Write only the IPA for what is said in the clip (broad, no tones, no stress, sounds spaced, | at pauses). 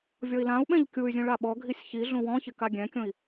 vʲ ɔ i̯ l ã u̯ ɓ ɛ̃ ʎ kʲ u y̯ zʲ ũ ɭ a ɓ ɔ ɡʱ i sʲ ç i ɮ ũ w ɔ̃ ç ɪ k a ɡʲ ɛ̃ kʲ õ i̯